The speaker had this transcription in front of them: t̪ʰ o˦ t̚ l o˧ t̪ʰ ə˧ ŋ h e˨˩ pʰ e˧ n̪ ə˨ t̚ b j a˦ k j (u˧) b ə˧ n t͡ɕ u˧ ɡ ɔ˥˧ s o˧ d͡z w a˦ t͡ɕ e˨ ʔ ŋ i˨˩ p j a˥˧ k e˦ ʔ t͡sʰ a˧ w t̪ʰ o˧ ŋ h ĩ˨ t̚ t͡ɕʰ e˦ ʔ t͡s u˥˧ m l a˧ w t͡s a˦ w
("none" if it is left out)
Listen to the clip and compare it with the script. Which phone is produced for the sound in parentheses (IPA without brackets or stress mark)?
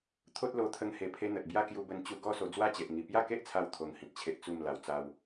u˧